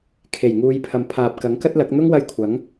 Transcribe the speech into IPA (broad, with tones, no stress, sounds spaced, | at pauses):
kʰ e˨˩ j ŋ uː˨˧ j pʰ ɐ˨ m pʰ aː˨ p̚ k ɐ˨˥ ŋ k ɐ˥ t̚ l ɐ˨˥ k̚ n̪ ʊ˥ ŋ w ɐ˧ j kʷʰ ɐ˨˥ ŋ